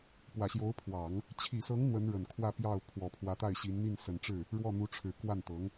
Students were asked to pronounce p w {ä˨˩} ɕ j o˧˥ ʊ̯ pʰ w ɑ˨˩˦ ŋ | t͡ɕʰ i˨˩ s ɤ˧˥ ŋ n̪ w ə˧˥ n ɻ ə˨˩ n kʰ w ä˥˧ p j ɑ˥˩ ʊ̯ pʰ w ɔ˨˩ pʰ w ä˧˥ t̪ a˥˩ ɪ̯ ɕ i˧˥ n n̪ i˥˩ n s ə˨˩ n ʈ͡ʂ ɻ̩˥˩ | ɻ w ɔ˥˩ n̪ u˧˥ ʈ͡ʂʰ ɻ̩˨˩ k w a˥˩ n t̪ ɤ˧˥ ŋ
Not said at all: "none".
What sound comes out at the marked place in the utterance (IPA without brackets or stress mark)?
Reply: ä˨˩